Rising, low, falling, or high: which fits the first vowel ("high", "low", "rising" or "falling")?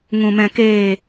low